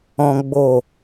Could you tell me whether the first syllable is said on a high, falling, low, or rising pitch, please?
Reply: high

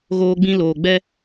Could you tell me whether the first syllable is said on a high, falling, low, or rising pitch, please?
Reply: high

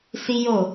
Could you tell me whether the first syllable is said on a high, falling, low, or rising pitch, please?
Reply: high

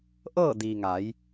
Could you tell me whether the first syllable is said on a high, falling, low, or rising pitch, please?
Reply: falling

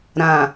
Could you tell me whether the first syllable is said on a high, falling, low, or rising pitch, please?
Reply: low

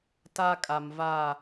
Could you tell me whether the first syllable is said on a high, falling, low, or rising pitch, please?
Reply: high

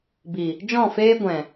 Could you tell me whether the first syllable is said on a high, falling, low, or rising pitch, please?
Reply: low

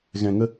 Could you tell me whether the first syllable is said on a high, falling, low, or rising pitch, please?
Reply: low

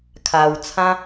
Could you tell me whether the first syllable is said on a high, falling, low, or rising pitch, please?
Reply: low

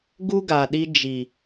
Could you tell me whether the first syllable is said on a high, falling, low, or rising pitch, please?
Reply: high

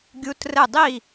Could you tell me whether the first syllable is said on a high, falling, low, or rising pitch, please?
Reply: rising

